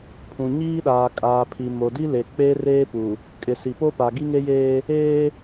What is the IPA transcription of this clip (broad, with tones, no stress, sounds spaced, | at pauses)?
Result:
pʰ ũ˨ ɲ iː˦ ɗ aː˨ kʼ aː˨ pʰ i˨ m o˨ d i˦ l e˨ k͡p e˦ r eː˦ p u˨ | kʼ ɪ˨ s i˨ p o˦ p a˨ ɡ i˦ ŋ e˦ j eː˦ | eː˦